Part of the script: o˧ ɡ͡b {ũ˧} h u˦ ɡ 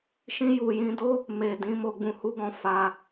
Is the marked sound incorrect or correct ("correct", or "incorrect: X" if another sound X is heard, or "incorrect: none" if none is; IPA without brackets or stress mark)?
correct